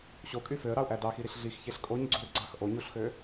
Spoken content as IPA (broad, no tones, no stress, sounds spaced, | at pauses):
ɕ o kʼ y f ø ə̯ ɾ ɑ ʊ̯ ʔ æ d ɑ x i ɾ i ɬ ɮ i x ç e ɬ kʼ o ɲ ɡ͡ǀ u r ɡ͡ǀ ɑ x ʔ o ɲ u ɬ x ø